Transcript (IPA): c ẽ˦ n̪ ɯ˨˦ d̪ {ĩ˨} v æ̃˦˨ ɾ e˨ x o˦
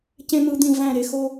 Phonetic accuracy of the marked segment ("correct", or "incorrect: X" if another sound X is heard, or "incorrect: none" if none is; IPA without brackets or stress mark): correct